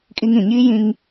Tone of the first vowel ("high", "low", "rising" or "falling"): high